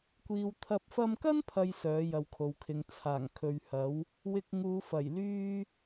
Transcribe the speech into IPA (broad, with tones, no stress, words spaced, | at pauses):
kʷiː˨wt̪ʰɐ˧p̚ fɐ˧mkɐ˥npʰɐ˨j sœː˨˥jɐ˨wkʰo˨wkʰɪ˨˧ŋ t͡sʰaː˨˩ŋkʰɵ˨ɥhɐ˨˥w | wɪ˧k̚ŋuː˨˧fɐ˨˩j lyː˥